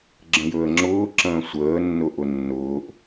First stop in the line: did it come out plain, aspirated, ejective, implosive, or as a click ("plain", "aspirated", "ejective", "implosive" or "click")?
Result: click